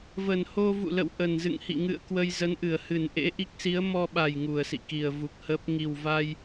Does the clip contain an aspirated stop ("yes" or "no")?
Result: no